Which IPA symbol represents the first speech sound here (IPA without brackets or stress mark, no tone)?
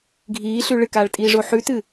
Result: ɡʱ